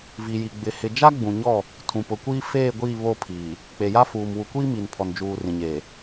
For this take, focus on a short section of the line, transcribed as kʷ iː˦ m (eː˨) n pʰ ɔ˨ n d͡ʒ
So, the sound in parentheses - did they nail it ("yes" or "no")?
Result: no